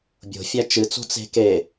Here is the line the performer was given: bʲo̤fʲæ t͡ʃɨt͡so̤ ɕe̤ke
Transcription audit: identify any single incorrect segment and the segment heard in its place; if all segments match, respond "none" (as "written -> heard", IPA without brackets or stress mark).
ɕ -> t͡s